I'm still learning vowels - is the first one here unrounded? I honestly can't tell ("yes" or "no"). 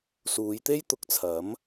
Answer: no